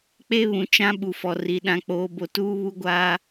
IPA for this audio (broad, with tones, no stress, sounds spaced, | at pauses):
k͡p e˦ β ũ˨ t͡ʃ ã˦ ɓ u˨ f ɔ˨ r i˨ ɗ ã˨ k͡p oː˨ b o˨ t uː˦ β u˦ ɡʷ aː˦